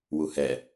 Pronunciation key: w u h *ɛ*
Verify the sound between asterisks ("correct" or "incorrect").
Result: correct